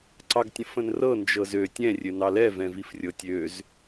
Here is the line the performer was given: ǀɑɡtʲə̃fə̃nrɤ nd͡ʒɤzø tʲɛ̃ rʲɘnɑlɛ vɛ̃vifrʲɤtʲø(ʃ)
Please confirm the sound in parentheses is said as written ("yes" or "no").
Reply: no